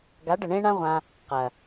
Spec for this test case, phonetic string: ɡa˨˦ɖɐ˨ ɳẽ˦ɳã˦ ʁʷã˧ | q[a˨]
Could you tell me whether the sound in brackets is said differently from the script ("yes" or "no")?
yes